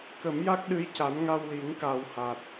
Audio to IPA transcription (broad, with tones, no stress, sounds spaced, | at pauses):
k ə˨˩˦ m j a˦˥ k̚ ɗ ɨ˧˥ j c a˨˩˦ n ŋ a˧ w l i˨˩˦ ŋ k a˨˩ w h a˨˩ t̚